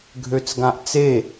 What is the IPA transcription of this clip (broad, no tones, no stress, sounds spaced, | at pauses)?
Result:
ɡʱ ø t͡s ɡ ã ʔ t͡s e